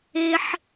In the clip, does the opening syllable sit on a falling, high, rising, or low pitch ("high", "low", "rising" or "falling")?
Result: high